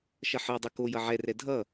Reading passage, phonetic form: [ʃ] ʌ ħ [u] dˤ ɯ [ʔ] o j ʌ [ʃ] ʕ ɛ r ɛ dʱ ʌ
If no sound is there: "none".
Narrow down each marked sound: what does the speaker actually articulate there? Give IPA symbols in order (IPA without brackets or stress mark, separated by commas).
ʃ, ɯ, k, none